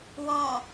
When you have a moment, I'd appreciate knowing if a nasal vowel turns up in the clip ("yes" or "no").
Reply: yes